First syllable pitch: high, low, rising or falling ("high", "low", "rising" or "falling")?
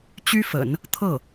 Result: high